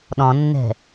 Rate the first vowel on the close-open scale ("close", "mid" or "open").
mid